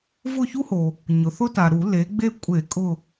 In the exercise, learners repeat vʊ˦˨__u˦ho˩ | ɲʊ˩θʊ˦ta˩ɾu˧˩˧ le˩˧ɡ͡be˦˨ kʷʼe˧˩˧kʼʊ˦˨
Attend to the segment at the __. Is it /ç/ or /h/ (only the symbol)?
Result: ç